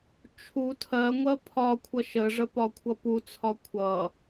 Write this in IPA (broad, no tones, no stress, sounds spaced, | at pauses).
t͡ʃʰ u tʰ ɜ ŋʷ ɜ pʰ ɒ kʷʰ ʌ ʃ ə ʐ ə p ɒ kʷʰ ʌ p u t͡sʰ ɒ kʷʰ ʌ